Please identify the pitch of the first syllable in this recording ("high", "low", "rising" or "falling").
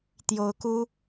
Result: rising